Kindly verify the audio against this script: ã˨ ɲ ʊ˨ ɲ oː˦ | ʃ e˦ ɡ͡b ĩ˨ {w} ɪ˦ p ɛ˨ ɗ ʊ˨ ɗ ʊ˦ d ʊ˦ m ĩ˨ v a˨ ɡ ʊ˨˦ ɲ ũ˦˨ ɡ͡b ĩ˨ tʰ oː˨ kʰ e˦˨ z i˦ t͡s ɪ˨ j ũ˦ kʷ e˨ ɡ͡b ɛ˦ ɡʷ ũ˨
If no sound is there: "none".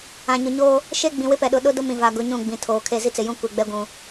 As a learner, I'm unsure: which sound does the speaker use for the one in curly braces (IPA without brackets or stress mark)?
w